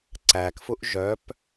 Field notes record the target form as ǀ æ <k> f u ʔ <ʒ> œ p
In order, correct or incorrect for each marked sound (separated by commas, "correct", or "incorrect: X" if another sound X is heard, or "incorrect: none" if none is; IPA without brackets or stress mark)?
correct, correct